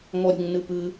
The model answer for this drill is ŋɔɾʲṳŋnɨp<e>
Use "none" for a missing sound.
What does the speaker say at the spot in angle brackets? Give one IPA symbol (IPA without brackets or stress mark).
ɨ